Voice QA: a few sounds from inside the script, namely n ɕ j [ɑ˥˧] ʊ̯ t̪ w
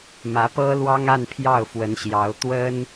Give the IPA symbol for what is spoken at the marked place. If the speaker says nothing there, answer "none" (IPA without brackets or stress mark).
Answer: ɑ˧˥